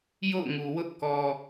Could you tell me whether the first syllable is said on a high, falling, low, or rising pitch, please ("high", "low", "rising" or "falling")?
falling